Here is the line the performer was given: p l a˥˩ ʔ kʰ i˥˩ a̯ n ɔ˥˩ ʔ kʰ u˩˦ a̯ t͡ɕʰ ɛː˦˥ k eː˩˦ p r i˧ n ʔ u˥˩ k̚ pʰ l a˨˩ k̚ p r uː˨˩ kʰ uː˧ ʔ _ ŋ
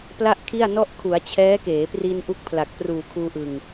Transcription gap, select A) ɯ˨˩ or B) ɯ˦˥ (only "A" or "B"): A